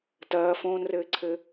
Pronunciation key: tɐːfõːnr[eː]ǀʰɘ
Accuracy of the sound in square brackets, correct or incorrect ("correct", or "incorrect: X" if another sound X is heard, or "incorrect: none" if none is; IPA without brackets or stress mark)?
incorrect: ɘː